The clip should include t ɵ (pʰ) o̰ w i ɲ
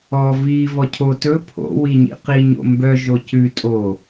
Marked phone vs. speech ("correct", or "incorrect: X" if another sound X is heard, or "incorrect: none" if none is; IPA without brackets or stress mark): correct